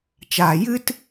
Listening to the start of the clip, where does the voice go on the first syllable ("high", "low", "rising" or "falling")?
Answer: low